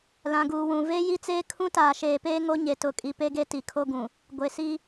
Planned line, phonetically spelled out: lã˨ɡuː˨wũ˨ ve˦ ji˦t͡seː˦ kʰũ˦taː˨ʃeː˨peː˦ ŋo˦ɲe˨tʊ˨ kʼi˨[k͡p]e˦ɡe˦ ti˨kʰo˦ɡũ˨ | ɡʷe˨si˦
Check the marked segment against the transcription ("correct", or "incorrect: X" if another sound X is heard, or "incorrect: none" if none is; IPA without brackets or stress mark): incorrect: p